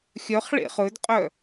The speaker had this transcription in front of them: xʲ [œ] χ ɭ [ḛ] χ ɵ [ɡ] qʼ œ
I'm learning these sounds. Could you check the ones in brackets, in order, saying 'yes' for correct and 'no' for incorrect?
yes, yes, no

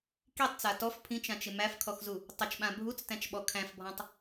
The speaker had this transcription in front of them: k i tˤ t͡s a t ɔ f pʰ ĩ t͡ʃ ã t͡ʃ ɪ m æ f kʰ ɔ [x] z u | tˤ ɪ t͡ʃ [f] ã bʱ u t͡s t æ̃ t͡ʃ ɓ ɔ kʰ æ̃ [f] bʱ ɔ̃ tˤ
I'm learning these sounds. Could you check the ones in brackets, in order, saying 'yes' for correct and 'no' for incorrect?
yes, no, yes

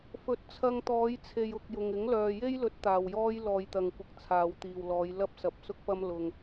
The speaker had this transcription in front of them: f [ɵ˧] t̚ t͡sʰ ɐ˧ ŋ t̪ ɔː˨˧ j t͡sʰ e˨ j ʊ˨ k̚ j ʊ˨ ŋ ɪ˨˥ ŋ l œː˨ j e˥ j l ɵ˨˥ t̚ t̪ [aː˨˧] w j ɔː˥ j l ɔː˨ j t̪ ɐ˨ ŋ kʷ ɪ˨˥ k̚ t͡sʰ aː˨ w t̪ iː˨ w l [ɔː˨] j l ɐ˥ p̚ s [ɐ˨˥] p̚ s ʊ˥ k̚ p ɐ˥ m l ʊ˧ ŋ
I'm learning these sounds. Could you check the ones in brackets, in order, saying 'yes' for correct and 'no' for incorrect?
no, no, no, yes

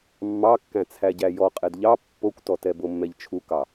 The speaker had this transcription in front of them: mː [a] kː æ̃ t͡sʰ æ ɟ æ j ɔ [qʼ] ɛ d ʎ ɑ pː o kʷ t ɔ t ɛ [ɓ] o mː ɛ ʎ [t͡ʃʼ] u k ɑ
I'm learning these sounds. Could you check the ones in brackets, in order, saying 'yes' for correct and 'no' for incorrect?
no, yes, no, no

